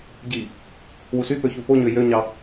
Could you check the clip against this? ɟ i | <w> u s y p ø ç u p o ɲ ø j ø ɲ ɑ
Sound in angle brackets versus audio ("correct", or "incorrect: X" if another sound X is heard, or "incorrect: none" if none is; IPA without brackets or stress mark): correct